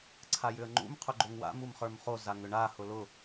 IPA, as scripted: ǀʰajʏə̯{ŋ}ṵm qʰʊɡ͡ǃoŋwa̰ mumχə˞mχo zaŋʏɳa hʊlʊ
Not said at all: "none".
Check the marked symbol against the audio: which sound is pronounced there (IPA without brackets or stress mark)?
ŋ͡ǃ